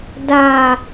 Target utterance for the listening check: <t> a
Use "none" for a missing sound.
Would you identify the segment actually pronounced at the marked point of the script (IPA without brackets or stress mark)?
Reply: d